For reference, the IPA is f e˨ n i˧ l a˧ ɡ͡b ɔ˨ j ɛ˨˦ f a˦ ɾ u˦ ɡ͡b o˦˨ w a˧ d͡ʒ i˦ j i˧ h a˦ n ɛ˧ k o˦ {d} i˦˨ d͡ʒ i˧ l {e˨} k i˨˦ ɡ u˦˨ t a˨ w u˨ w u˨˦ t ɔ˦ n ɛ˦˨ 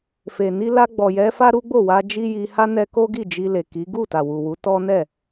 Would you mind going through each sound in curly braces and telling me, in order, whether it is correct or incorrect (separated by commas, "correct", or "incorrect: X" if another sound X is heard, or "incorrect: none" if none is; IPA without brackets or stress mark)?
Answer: incorrect: ɡ, correct